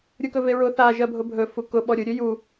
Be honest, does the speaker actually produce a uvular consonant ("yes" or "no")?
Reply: no